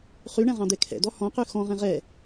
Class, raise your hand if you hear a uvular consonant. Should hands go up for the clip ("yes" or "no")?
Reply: yes